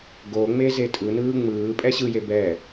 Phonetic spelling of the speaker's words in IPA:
ɡ o ŋ͡m e z e tʼ ɯ n ɯː ŋ͡m ɯː pʼ ɛ ɕ ɯ j e b ɛ

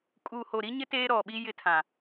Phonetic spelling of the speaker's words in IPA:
kʼ uː˨ h o˨ ɾ i˦ ɲ ɪ˦ t eː˦ ɾ ɔ˨ ɓ i˦ j ɪ˦ tʰ ã˨

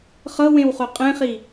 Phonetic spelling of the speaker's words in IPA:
χ ɤ w ẽ w χ o qʼ ẽ χ i

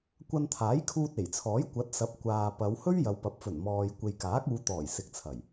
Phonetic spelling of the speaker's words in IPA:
kʷ ɐ˧ n t̪ʰ aː˨˥ j kʰ uː˧ t̚ e˨˩ j t͡sʰ ɔː˨˥ j kʷ ɐ˨˥ t̚ s ɐ˨˥ p̚ kʷ aː˨ p ɐ˨˧ w h ɵ˥ ɥ j ɐ˨˧ w p ɐ˨˥ p̚ f ɵ˨˩ n m ɔː˨ j kʷ e˨ j k aː˨˥ k̚ uː˨˧ t̪ ɔː˨˩ j s ɪ˨˥ k̚ t͡sʰ ɐ˨˩ j

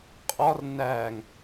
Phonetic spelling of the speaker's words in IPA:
qʼ ɒ r n æ ŋ

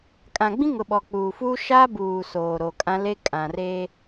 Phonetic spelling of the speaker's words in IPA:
kʼ ã˨ ɡ͡b ĩ˦ ŋ ʊ˨ ɓ ɔ˨ k͡p uː˨ f uː˦ ʃ a˦ b uː˨ s oː˨ ɾ o˨ kʼ ã˦ l e˦ kʼ ã˨ r eː˦

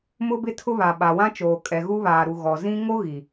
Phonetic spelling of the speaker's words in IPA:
m ʊ˦ b ɪ˦ tʰ ʊ˦ β a˨ ɓ a˨ w ã˦ t͡ʃ oː˨ kʼ ɛ˨ ɣ u˦ β aː˨ ɾ u˨ ɣ ɔ˨ z ĩ˦ ŋ o˦ ɣ i˨

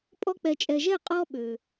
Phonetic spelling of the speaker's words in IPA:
pʼ ɔ˧ k͡p ɛ˨ t͡ʃʼ ɛ˨ ʒ ɛ˦˨ qʼ ɔ˧ ɓ ø˨

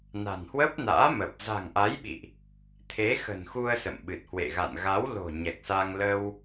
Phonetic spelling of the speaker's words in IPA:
n a̤˨˩ n h w əː˦˥ p̚ n a̰ː˧˥ m ə˨˩ p̚ z a̤˨˩ ŋ ʔ a˨˦ j ɓ ḭ˧˨ ʔ | t̪ʰ e˨˦ x ə̤˨˩ n x u˧ ə̯ s ə̰˧˨ m ɓ ɨ˨˩ t̚ h w ḛ˧˨ ɣ a̰˧˨ n ɣ a˨˦ w l o̤˨˩ ɲ ɛ˨˩ k̚ s a˧ ŋ l ə˧ w

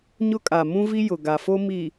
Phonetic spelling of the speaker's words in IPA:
ɲ ʊ˦ kʼ a˨ m ũ˦ v i˦ j ʊ˨ ɡ a˨ f o˦ m i˨

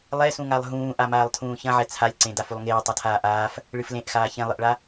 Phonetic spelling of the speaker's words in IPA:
lˠ ɛ s ũ ŋ a lˠ ɦ ũː ʔ a m aː lˠ tʰ ũː ç ɐ̃ ʕ ɛ t͡sʰ a lʲ ǀ ẽ d a f u lˠ ŋ eː tˤ ɐ tʰ aː ʔ aː f | ɭ ɨ f l ẽ ʔ x aː ç ẽ lˠ ɨ ʔ ɭ a

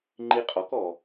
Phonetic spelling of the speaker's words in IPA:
ŋ͡ǃ i˧ qʼ ɔ˩˥ k ɔ˩

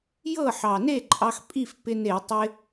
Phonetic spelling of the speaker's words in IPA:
j ɤ˥˩ ħ ɑ˨˩ n e˥˩ ǃʼ ɑ˧ x pʼ i˥˩ f p ɪ˧ n e˧˩˧ tˤ ɪ˧

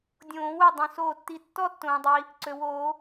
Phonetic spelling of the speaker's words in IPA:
dʲ õː˨˩˦ w ø˧˩ dˤ ũ˩ s oː˧˩ tː i˧˩ tː ɔ˥˧ tː õː˩ dˤ i˩ | ǀ ø˩ w oː˨˩˦

